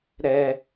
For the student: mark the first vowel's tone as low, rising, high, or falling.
high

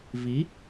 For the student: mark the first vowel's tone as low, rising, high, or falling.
rising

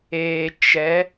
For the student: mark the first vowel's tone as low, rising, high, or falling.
low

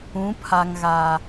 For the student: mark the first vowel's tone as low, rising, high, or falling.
rising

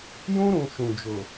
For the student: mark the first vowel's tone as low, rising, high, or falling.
high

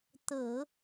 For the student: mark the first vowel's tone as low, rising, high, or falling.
low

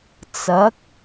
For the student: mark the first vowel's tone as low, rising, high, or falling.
rising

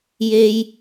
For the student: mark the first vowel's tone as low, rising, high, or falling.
high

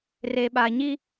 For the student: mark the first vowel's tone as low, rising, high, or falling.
low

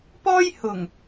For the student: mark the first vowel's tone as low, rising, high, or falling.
high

